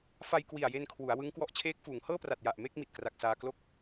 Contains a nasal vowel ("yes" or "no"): no